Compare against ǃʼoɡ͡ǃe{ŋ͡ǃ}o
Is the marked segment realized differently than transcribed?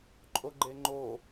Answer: no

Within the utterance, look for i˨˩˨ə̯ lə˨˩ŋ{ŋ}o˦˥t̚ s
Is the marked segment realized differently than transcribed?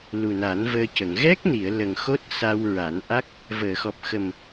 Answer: yes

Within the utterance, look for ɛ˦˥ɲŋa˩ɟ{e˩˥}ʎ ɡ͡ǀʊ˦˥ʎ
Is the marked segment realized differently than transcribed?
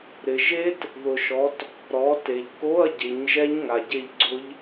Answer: yes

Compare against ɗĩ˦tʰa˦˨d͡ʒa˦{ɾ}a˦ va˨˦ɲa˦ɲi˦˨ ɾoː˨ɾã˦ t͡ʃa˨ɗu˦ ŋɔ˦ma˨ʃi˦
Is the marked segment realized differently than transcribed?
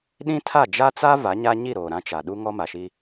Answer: yes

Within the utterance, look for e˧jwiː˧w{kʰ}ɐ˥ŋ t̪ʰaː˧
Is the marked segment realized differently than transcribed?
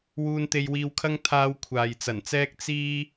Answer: no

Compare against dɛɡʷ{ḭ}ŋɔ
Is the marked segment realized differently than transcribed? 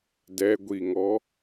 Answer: yes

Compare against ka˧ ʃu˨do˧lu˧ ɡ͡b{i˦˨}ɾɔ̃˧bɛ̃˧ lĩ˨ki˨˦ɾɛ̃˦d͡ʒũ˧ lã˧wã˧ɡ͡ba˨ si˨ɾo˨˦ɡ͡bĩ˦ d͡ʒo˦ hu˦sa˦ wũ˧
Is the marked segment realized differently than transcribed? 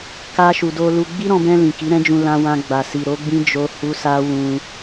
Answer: yes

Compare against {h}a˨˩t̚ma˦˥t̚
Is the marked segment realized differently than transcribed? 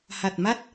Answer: no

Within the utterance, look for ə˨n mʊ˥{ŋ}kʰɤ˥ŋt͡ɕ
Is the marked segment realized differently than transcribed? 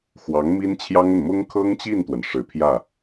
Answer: no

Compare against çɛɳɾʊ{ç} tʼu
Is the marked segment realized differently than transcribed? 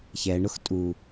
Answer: yes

